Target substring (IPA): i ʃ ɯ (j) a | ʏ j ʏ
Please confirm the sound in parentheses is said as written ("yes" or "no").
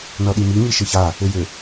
no